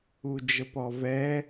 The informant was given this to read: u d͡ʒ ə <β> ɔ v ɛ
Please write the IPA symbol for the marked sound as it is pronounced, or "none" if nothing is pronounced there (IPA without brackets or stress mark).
p